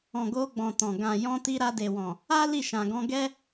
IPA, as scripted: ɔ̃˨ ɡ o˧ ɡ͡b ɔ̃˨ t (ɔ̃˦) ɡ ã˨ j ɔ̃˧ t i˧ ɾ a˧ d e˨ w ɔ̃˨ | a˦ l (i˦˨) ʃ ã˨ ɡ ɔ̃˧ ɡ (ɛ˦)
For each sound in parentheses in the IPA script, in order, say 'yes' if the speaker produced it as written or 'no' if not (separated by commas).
no, yes, yes